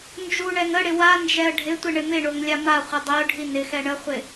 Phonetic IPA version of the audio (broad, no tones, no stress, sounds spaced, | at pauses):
n d͡ʒ u ɳ ɛ ŋ ə ɽ ɪ w a n d͡ʒ ɛ ə̯ ɖʱ ɪ tʷ ɪ ɳ ɪ m ɪ ɳ o ŋ lʲ a m a χʷ ɪ dˤ i ʊ̯ ɖʱ i n ɪ x ɛ ɳ ə χʷ ɪ